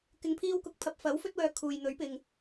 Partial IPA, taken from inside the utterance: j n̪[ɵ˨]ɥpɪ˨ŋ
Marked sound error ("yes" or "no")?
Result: yes